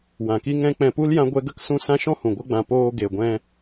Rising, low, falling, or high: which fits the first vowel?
low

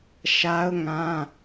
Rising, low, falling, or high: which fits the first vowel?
high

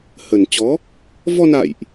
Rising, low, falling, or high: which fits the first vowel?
low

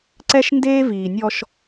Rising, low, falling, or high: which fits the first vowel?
high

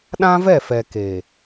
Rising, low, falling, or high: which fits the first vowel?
high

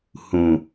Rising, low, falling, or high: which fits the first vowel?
low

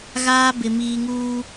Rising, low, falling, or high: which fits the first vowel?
high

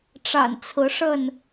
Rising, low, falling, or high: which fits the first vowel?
low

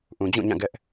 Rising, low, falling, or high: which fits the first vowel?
low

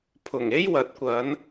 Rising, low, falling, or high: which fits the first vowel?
low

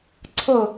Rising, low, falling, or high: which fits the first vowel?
falling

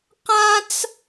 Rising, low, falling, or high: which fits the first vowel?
high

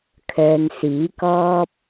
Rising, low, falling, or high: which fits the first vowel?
low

